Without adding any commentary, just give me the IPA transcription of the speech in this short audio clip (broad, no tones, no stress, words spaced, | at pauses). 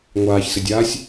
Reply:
ŋʷaːçsɪdʲaːsʲ